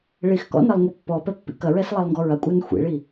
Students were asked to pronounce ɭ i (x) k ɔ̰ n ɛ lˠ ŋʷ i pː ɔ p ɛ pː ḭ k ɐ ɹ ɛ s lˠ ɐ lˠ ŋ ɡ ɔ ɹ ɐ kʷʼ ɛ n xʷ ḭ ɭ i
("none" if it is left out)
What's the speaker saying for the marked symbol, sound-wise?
x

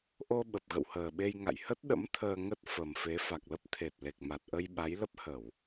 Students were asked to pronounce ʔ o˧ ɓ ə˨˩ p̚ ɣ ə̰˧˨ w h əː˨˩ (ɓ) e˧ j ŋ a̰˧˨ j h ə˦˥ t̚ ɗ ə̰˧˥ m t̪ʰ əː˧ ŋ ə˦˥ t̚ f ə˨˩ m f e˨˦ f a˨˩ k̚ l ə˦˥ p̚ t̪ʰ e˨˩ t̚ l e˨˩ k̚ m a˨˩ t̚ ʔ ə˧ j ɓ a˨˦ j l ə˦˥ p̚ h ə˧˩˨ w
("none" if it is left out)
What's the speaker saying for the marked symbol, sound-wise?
ɓ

